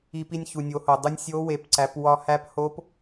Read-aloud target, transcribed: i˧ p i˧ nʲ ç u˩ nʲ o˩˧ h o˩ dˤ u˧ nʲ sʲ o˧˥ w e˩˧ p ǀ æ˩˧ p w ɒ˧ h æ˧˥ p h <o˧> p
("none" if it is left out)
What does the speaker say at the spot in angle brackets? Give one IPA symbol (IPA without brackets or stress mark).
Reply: o˧˥